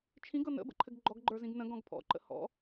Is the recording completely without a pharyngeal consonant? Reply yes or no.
yes